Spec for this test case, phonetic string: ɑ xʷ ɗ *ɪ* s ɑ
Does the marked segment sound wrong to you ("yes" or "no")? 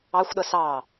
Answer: yes